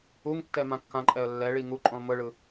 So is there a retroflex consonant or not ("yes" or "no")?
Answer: yes